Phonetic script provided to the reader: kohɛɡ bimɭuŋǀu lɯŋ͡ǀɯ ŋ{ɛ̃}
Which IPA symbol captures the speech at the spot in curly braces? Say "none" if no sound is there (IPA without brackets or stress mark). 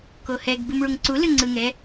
ɛ